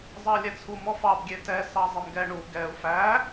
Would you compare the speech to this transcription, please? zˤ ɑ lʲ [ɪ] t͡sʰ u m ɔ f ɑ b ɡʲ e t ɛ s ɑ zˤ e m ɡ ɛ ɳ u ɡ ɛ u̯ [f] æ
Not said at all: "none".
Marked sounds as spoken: ɛ, f

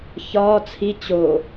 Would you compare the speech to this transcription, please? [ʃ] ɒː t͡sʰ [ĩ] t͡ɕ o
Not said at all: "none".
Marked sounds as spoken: ç, i

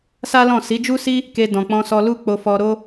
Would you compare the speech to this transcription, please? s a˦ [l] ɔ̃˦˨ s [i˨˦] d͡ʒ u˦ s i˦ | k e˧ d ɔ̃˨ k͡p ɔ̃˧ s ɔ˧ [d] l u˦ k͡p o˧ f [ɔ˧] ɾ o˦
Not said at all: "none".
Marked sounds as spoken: l, i˨˦, none, ɔ˧

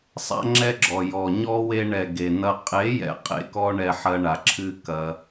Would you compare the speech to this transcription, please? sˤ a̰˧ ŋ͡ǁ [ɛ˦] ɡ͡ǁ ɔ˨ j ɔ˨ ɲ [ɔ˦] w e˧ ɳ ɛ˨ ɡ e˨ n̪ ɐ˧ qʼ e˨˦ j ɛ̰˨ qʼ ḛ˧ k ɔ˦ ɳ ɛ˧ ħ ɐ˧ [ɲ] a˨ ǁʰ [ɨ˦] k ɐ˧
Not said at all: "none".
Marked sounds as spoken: ɛ˦, ɔ˦, ɳ, ɨ˦

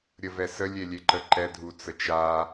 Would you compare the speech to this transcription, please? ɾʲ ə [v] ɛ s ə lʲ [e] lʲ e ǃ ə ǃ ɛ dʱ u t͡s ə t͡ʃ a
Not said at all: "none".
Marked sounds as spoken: v, e

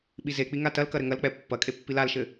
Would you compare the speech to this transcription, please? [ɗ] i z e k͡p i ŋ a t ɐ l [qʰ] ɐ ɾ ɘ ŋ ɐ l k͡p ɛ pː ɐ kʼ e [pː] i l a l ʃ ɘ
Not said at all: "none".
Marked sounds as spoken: ɓ, k, pː

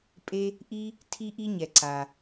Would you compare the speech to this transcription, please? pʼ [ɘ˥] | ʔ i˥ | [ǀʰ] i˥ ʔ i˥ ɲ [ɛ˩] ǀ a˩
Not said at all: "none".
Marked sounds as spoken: e˥, tʰ, ɛ˩

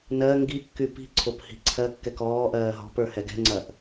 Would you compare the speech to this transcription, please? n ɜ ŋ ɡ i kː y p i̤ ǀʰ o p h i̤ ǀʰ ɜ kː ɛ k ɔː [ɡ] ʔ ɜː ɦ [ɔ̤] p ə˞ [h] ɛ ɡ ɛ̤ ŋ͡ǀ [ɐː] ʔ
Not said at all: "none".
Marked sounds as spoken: none, ɔ̤, h, ɐː

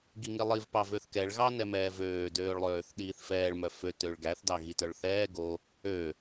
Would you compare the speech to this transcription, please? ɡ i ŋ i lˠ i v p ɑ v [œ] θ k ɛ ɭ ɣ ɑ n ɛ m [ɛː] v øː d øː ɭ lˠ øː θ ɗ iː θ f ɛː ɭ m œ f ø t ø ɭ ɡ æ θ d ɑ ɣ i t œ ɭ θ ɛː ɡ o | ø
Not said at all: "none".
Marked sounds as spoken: ø, ɛː

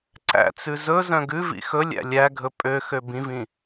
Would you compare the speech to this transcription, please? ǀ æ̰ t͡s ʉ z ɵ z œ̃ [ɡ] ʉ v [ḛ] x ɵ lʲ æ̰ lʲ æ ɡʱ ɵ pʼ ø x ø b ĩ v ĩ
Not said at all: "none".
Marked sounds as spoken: ɡ, ḭ

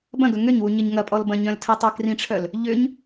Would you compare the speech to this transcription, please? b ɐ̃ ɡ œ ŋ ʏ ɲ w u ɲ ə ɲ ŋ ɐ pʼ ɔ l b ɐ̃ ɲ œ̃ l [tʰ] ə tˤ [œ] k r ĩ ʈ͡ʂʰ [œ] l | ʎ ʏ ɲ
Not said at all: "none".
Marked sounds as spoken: tʰ, œ, œ

